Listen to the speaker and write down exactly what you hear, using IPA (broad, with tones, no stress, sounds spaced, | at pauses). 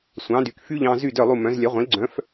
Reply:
sʷ ɑ̃˩˥ d y˩ k f y˥ ʎ ɑ̃˧ z y˥˩ d œ˥˩ lˠ u˥˩ m œ̃˩˥ z lʲ œ˩˥ ʁʷ ĩ˩˥ l ɡ͡ǀ œ̃˩˥ f